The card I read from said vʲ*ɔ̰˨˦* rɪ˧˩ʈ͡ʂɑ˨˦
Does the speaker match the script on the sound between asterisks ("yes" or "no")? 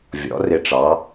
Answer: yes